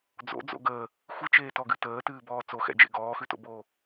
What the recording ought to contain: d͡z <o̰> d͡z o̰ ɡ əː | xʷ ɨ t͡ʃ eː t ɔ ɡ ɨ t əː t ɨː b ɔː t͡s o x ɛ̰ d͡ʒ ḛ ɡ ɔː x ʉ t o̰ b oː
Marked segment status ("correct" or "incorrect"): correct